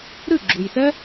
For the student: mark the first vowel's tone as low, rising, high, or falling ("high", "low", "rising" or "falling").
falling